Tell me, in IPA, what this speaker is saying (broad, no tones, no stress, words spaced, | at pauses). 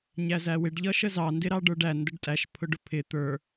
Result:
ɲæzæwɪɖ ʎʌʃəzɑ ndɪɾɑɖə˞ɖæ ndʊɖtʼæʃ pʰʊɖʊpʰɪ t̪ə˞